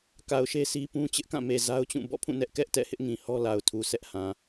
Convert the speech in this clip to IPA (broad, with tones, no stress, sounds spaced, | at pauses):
k a˨ ʊ̯ ʃ e˦ sʰ i˦ p ũ˦ t͡ɕ ɪ˦ ʔ k ã˦˨ m e˨ z a˦ ʊ̯ t͡ɕ ũ˦˨ b ɔ̰˦˨ pʰ ũ˦˨ n ɛ˦ ʔ k ɛ˦ ʔ t ɛ̰˦˨ h ɪ˦ ʔ ŋ ĩ˨ h ɔ˦ l a˨ ʊ̯ tʰ u˨ sʰ ɛ˦ ʔ h ã˨